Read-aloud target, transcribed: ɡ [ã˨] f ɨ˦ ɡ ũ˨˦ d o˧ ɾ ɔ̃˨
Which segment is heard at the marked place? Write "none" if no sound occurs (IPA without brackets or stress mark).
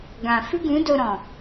ã˨